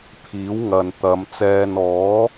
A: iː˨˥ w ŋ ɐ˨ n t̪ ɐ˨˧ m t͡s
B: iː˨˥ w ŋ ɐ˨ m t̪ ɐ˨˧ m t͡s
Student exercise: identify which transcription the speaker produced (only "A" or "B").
A